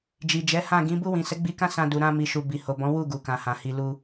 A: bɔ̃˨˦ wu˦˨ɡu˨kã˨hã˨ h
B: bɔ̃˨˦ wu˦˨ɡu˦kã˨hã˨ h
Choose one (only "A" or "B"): A